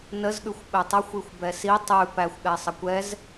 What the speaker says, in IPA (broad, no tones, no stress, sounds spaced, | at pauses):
n ə z ɠ ʉ xʷ ɓ ɛ tˤ ə xʷ i xʷ b ɛ s i tˤ ʉ p æ xʷ ɠ ɛ sˤ ə kʷ ɛ z